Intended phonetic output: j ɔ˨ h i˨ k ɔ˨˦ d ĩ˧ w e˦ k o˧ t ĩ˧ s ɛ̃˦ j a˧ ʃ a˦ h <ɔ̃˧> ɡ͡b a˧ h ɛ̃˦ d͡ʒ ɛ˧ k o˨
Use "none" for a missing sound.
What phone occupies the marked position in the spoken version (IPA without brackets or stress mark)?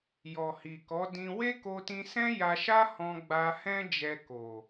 ɔ̃˧